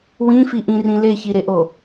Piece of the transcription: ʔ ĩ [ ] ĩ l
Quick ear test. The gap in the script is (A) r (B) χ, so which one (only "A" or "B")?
A